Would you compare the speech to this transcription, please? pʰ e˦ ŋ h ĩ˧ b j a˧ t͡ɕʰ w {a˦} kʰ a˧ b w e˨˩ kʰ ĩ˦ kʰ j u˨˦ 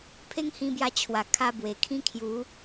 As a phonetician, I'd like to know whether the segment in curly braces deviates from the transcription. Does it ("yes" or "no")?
yes